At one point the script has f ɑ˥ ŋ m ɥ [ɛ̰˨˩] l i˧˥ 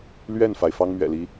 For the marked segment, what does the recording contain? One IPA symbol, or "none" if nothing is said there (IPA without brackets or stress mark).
ɛ̰˨˩